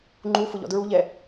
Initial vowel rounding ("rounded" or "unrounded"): rounded